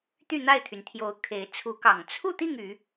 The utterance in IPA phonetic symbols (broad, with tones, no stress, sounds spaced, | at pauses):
t̪ y˥˨ n̪ a˥˨ ɪ̯ t̪ʰ y˩ n t̪ʰ j o˨˦ ʊ̯ kʰ e˨˦ ɪ̯ t͡sʰ u˨˦ k ɑ˨˩ ŋ t͡sʰ u˥˨ t̪ i˥˨ ŋ y˨˦